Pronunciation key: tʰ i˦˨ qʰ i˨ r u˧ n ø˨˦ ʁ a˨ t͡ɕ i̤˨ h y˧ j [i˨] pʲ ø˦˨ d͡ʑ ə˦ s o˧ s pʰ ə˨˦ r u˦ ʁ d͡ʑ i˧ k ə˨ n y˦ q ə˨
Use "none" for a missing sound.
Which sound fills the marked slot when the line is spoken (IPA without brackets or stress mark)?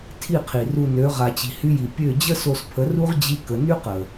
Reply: i˨